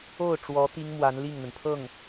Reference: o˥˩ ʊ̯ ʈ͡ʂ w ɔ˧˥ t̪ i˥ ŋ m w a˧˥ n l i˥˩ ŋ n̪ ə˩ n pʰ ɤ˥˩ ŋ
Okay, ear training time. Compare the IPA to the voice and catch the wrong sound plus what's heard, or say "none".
none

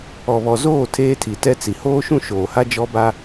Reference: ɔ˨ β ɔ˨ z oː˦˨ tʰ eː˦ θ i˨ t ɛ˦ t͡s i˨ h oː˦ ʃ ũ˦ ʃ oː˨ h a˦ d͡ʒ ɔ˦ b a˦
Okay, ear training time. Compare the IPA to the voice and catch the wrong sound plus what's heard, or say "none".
θ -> tʰ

